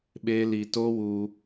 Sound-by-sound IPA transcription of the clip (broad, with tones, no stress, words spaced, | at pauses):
ɓeː˦li˧ toː˦wu˧